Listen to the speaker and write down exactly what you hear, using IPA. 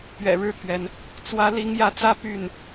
p ɥ ɛ̰˨˩ ɻ ɻ̩˥˩ t̪ʰ ɥ ɛ˩ n | t͡s w ä˧˥ l i˧˥ ŋ j ä˧˥ t͡s ä˥ p y˥˩ n

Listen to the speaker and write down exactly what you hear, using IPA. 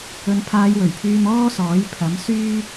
ɵ˨˧ n pʰ aː˧ j w ɵ˨˩ ɥ pʰ yː˧ m ɔː˥ s ɔː˨˥ j pʰ ɐ˨˥ m s yː˥

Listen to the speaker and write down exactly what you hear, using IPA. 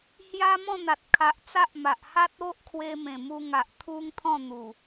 h j a˦ m ɔ̃˥˧ n̪ a˨ t̚ kʰ a˨ ʔ t͡s a˦ ʔ m a˨ ʔ h a˦ t̚ o˦ ʔ kʰ w e˧ m ẽ˨˩ m u˧ ŋ a˨ ʔ t̪ʰ u˦ ŋ t̪ʰ ɔ̃˥˧ n̪ u˨˩

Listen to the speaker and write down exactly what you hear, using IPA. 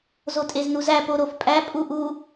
z o tʼ e z n u z æ p o ɾ o f pʼ æ pʼ u ʔ u

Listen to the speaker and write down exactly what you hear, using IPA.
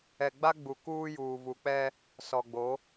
ɛ˨ ɡ͡b a˦ ɡ͡b u˨ k uː˦ j uː˨ v u˨ k͡p ɛ˦ | s ɔ˨ ɡ͡b o˨˦

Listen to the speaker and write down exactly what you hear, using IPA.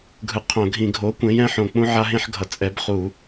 ɡʱ ɯ˨˥ qʰ õ˧˩˧ ɡʱ ĩ˧˩˧ ɡʱ o˨˥ kʷ ẽ˨˥ j ɛ̃˨˥ ħ õ˨˩ k͡p ũ˦ ʕ a˦ ɦ ẽ˦ ħ ɡʱ ʌ˨˩ t͡sʼ ɛ˨˥ b χ u˧˩˧

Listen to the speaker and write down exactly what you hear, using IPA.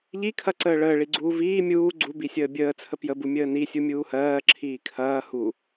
ʎ i kʰ ɐ ǀ əː ɭ əː ɭ i ɡ͡ǀ uː v iː mʲ uː ɡ͡ǀ u b i sʲ əː bʲ əː t͡sʰ ə p j ə b u mʲ əː n i sʲ u mʲ uː h ɜː ǁʰ iː kʰ ɐː h u

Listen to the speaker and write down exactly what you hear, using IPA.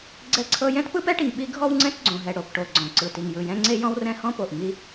ɡ͡ǀ ɛ˥ ǀʰ ɤ˥ j ɛ̃˥ t p ɯ˥ p ɛ˥ ʈ i˩ ŋ ɓ i˥ ɡʱ ɔ˥ w ŋ͡ǀ ɛ̃˥ t ɡ͡ǀ õ˩ ɦ ɛ˩ ɽ o˩ p ʈ o˩ ɡ͡ǀ ɔ̃˩ ǀ ɯ˩ t i˩ ŋ j ɯ˩ j ɛ̃˥ ŋ͡ǀ e˥ j ɔ̃˥ w r ɛ̃˥ h ɔ̃˥ p o˩ ʔ ŋ i˥

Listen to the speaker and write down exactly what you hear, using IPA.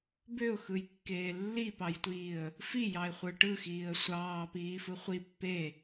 b ø ʊ̯ x ɯ j kː eː lː i p ɑ j tʷ iː ə̯ | f i j ɑ ɪ̯ χʷ ɯ ʈ ɯ x iː ə̯ sʷ ɑː p iː f ɯ χʷ i pː e

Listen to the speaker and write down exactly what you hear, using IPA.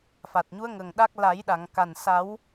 f a˨˩ t̚ ɲ u˧˥ ə̯ ŋ ə˨˩ ŋ ɗ a˦˥ k̚ l a˨˩˦ j ɗ a˨˩˨ ŋ k a˨˩ n s a˨˩˦ w

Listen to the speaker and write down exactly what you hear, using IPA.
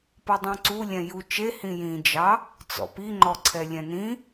p ʌ dˤ ũ ǀ u lʲ ɛ̃ j u t͡ʃ e h ĩ j ĩ d͡ʒ ɑ | t͡s ɔ̰ p i ŋ͡ǃ ɔ ǀʰ ɛ lʲ ɛ̃ n ĩ

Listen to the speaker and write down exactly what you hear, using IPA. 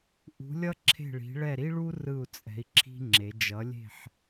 ʔ ṳ˨˦ lʲ ʌ˥ ǁʰ e̤˦˨ ɭ i̤˨˦ ɭ ɛ˦˨ ɾ i˥ ɭ u˥ r ɯ˦˨ u̯ t͡sʼ ɛ̤˨˦ i̯ ǁʰ i̤˥ ŋ͡ǁ e˨˦ d͡ʒ ʌ˨˦ lʲ e̤˦˨ ħ

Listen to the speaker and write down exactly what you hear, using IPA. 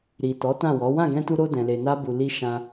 ɾ i˨ t ɔ˨˦ t ã˦˨ w ɔ˨˦ w ã˦˨ ɡ ɛ̃˧ t u˧ ɾ o˧ d ɛ̃˨ l e˨ n a˧ b u˨ l i˧ ʃ ã˧

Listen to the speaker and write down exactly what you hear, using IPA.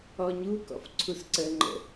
ɔ ɲ u k ɔ̰ f ǀʰ u s ǀ ə ŋ͡ǃ ə̰

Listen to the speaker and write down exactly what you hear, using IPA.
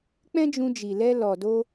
k͡p ɛ̃˦ d͡ʒ ũ˧ d͡ʒ i˨ l ɛ˧ l ɔ˨ d o˧

